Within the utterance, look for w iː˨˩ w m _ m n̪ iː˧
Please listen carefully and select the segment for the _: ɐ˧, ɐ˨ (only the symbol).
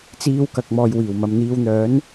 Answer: ɐ˨